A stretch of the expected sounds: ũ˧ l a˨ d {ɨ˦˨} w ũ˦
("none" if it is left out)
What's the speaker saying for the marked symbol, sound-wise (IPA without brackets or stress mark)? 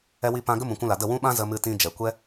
ə˦˨